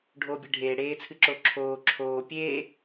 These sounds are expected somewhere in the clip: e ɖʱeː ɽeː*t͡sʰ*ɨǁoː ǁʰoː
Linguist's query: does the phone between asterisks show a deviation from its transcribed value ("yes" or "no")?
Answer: no